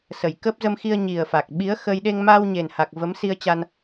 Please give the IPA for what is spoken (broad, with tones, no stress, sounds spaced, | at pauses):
s ə˨˩ j k əː˦˥ p̚ z ə˧ m x i˧ ə̯ ɲ i˨˩ ə̯ f a˨˩ k̚ ɓ i˨˦ ə̯ x ə˧ j ɗ e˧ ŋ m aː˧ w ɲ e˨˩ n h a˨˩ k̚ v ə˨˦ m s i˧ ə̯ t͡ɕ a˧ n